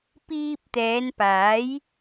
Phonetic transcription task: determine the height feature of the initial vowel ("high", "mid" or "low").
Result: high